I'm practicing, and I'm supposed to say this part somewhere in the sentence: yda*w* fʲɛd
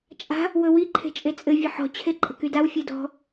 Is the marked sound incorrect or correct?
correct